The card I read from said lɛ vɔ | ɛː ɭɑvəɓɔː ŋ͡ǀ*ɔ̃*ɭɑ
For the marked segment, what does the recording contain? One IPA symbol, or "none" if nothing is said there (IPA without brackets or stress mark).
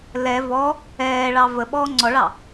ɔ